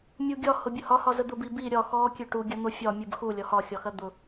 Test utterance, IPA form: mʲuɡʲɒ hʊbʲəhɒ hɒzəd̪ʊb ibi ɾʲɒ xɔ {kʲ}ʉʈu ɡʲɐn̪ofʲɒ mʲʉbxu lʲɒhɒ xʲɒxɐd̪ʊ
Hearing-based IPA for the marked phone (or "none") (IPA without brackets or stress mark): kʲ